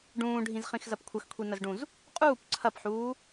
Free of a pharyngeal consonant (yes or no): no